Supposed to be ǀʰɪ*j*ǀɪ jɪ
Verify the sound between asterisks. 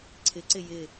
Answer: incorrect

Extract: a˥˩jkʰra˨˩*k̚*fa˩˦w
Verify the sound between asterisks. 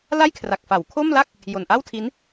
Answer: correct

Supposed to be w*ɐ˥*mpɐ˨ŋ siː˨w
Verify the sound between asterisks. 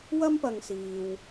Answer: correct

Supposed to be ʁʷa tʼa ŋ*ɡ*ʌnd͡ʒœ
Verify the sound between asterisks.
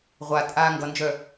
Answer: correct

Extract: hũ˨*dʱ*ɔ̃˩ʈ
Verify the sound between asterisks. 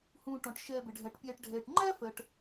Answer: incorrect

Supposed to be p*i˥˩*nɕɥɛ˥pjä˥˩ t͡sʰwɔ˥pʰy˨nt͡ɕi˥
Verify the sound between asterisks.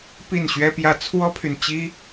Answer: correct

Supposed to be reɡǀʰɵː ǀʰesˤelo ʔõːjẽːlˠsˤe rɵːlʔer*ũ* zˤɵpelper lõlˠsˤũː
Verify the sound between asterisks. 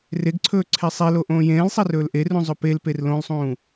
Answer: correct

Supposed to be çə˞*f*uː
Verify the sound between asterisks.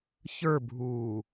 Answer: incorrect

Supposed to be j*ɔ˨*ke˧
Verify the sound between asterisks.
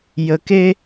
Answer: incorrect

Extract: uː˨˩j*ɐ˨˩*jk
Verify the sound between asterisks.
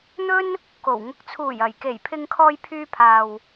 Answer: correct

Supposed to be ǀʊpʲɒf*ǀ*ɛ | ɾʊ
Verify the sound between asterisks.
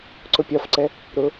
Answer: correct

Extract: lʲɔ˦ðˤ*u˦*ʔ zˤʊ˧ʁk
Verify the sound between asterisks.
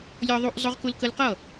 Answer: correct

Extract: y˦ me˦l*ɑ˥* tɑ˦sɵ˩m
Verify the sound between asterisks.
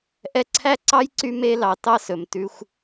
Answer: incorrect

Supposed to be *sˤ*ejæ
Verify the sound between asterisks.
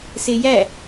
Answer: incorrect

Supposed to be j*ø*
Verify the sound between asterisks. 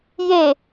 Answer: incorrect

